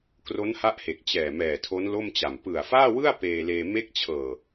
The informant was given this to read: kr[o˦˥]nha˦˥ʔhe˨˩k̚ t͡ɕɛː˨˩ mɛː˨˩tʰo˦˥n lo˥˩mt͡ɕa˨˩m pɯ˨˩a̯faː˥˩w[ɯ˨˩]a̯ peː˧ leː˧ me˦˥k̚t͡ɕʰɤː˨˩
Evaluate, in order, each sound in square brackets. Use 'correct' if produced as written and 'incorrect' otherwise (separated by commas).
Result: correct, incorrect